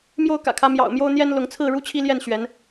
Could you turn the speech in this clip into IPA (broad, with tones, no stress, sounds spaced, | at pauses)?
m j o˥˨ ʊ̯ k ä̰˨˩ kʰ ä˨˦ m j ɑ̰˨˩ ʊ̯ m j o˦ ʊ̯ n̪ j ɛ˦ n l ʊ˨˦ ŋ t͡sʰ ɹ̩˥˨ ɻ u˦ t͡ɕʰ i˦ l j ɛ˥˨ n ɕ ɥ ɛ˨˦ n